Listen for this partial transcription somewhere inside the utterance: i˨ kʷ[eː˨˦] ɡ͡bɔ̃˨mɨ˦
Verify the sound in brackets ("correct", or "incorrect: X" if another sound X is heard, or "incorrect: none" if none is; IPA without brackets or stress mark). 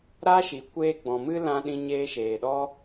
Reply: incorrect: eː˧